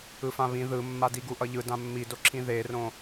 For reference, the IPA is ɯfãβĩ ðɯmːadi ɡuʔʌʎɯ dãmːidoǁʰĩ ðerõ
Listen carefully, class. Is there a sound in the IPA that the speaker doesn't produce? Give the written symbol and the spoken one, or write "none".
none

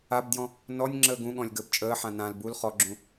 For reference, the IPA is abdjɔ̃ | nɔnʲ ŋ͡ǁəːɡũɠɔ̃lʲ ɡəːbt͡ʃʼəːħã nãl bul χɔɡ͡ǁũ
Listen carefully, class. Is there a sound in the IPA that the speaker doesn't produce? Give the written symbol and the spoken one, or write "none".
none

